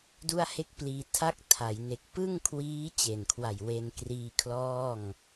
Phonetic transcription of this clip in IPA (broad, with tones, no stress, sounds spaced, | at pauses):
d u˥˩ a̯ h e˥˩ k̚ p l iː˧ tʰ a˥˩ k̚ tʰ a˩˦ j n e˨˩ k̚ p ɯ˥˩ ŋ kʰ w iː˦˥ t͡ɕ e˨˩ n kʰ w a˨˩ j w e˧ n k r iː˧ kʰ l ɔː˥˩ ŋ